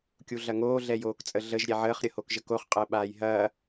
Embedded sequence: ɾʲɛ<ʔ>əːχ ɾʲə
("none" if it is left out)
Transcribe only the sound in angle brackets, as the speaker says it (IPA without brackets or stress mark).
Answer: ʕ